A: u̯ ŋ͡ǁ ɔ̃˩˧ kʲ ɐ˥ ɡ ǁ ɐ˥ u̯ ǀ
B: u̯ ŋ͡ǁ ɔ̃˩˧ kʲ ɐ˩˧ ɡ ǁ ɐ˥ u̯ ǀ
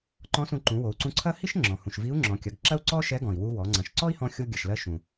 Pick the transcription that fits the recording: B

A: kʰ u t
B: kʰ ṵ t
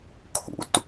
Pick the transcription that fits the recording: B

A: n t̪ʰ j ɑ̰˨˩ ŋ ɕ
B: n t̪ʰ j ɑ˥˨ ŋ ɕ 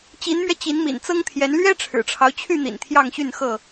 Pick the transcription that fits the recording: B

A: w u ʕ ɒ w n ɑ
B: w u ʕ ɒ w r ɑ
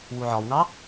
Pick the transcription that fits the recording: A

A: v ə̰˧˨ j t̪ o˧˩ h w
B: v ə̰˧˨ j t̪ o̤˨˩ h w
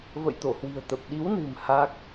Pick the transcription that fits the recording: A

